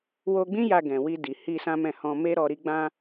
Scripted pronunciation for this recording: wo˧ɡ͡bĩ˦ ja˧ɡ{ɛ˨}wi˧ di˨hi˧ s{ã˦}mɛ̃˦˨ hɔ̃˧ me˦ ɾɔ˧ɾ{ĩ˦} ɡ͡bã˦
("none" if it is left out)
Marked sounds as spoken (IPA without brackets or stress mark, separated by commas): ɛ̃˨, ã˦, i˦